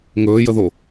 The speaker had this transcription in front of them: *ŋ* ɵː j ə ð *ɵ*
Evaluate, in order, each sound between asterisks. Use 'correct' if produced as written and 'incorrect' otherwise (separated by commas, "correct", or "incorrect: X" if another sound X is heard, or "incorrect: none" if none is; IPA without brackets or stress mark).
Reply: correct, incorrect: o